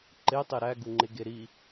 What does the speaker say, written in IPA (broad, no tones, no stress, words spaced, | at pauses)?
ǃetˤe ɾæɡuŋ͡ǃe ɡeɾi